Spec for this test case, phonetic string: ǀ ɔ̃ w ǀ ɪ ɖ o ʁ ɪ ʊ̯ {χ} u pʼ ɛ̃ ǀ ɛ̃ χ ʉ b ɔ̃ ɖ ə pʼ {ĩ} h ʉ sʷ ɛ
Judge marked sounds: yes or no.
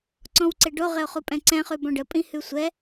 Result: yes, yes

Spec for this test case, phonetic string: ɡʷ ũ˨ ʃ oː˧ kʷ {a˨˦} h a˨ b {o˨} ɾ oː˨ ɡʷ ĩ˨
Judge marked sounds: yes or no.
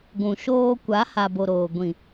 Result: yes, yes

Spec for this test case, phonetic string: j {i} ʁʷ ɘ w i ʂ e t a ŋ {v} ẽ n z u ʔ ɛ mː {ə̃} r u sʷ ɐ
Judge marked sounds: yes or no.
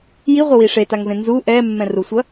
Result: yes, yes, no

